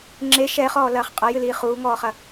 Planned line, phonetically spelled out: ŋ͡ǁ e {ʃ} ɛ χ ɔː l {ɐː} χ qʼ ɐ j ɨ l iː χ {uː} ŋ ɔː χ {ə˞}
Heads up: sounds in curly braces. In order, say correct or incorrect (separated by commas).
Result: correct, correct, correct, incorrect